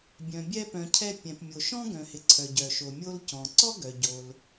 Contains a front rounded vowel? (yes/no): yes